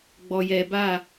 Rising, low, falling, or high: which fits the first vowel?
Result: low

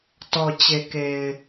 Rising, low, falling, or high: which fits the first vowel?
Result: low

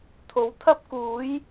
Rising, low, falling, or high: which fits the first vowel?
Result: rising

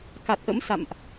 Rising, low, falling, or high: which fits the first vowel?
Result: low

